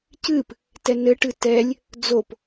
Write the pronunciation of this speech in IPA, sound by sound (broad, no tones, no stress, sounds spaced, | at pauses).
c ɨ p | t ɛ n ɘ ʈ ɨ t ɛ lʲ | d͡z o p